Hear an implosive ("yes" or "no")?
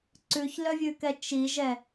no